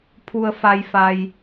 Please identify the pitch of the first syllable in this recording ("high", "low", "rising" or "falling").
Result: low